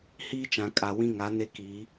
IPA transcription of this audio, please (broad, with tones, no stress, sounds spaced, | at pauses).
h iː˦ t͡ʃ ã˨ kʼ a˨ w ĩ˦ ŋ a˨˦ n e˦ k iː˨˦